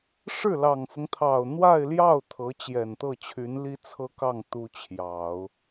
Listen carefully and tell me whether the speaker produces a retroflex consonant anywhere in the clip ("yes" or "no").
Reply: yes